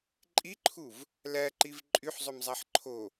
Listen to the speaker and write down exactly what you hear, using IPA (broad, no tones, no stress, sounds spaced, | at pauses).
ǃʼ i ǃʰ u v | l æ ǃ i v ǃʼ y ħ zˤ ø m zˤ æ ħ ǃʰ o